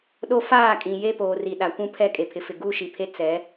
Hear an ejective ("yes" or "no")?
yes